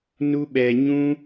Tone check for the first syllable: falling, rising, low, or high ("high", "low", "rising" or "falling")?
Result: high